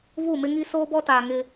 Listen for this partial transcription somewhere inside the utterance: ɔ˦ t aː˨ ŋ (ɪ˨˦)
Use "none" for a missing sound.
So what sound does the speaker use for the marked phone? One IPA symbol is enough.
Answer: ɪ˦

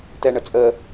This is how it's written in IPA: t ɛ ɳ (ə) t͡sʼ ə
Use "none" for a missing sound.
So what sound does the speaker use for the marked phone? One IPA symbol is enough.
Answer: ə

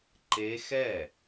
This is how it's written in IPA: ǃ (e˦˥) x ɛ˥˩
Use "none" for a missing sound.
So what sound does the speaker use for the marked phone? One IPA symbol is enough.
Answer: e˦˥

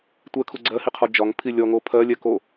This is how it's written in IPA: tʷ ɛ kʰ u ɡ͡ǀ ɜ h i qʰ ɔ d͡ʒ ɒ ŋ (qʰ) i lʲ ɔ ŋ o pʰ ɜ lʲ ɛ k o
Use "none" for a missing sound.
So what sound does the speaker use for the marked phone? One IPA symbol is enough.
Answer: pʰ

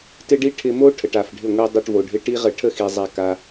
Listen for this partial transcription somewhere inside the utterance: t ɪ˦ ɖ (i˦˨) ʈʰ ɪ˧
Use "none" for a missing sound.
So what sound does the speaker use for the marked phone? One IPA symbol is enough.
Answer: i˦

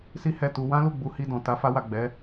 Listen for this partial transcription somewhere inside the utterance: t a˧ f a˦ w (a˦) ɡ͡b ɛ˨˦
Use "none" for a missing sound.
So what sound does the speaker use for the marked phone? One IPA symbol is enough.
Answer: a˦˨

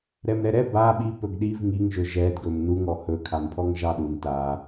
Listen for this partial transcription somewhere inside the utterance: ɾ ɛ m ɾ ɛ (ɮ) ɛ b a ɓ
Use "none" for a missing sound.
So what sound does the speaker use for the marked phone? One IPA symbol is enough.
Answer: ɾ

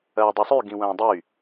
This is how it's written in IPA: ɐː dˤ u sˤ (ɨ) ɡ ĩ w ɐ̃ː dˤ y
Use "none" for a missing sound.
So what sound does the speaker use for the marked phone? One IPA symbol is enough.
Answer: y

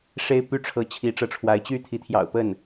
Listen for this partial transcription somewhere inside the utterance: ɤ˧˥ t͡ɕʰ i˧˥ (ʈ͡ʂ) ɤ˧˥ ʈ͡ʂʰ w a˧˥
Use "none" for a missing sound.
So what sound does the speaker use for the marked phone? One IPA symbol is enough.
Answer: ʈ͡ʂ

